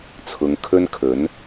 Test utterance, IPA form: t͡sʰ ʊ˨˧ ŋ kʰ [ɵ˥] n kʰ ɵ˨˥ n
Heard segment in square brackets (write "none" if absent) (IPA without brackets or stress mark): ɵ˥